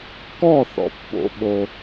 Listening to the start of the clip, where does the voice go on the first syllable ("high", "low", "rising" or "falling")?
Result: falling